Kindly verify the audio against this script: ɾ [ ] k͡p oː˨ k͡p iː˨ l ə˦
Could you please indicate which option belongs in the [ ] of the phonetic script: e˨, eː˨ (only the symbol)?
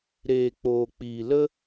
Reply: eː˨